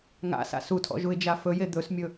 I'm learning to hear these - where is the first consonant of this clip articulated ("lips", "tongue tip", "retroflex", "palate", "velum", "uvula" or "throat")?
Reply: velum